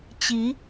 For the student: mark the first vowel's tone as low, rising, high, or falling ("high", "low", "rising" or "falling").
rising